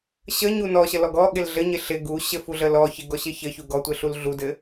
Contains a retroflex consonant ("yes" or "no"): no